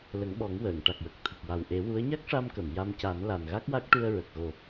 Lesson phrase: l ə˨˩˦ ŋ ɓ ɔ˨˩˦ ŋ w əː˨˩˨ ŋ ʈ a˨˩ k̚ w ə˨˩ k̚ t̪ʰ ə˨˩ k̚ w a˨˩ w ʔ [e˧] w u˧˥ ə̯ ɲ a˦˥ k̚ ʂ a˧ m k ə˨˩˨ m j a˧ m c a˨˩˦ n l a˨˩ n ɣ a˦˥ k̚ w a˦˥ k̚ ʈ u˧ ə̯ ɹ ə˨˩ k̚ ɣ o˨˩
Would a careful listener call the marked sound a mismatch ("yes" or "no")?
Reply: yes